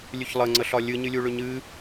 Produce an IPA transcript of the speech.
lʲʉçlˠəŋ͡ǀəɬɒ lʲɨɲɨlʲu ɭʏɲɨ

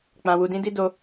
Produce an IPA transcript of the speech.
k͡pã˧wu˧dĩ˦di˦ do˦

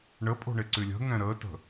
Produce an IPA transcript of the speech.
ɳəpʼo̤ɳeǀy lʲə̤ŋɛ̃ ɾəːtə̤

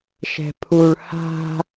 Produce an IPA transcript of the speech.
ʃɛ̤pʰuɭ ha̤

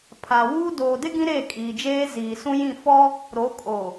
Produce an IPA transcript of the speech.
pʰa˨wuː˦ doː˨dɪ˦ ɡĩ˦ɾeː˦˨ kʼiː˨d͡ʒeː˦ ziː˨ sũ˦jĩ˦˨ fɔ˦ | ɾo˨˦kʼo˨

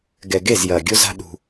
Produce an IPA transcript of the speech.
ɡɛ˨ɡe˦˨z jɐː˨ɡʲo˦za̤˦ ɗṳ˦

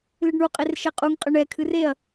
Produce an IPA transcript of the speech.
lɨɖɳuqʼer ʃɛqʼuŋqʼə ɳɛkʰɨr eɐ̯

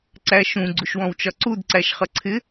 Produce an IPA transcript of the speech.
ǀæʃũ ɡ͡ǀuʃwɔ̃wt͡ʃɒǀud ǀæʃχʌǀʰɪ

